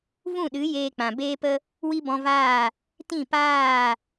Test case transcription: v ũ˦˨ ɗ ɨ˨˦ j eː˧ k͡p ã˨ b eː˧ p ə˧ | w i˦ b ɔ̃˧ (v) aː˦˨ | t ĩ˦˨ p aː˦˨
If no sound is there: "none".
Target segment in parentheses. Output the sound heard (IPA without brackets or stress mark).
v